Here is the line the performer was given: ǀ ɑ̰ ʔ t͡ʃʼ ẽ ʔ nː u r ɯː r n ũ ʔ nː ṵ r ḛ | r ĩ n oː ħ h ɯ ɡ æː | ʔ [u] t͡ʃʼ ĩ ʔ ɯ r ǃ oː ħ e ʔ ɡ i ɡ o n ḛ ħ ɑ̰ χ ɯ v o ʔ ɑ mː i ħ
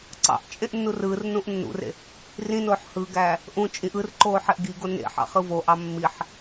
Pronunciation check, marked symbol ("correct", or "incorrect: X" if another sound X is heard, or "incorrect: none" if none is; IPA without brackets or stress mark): incorrect: ũ